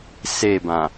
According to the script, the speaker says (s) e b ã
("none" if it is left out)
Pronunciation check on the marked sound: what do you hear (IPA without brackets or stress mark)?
s